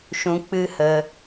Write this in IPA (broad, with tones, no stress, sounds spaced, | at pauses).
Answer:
ʃ ũ˧ k͡p ɨ˦ h ə˧